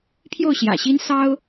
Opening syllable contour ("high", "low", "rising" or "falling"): falling